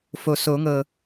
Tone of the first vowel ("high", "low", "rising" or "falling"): low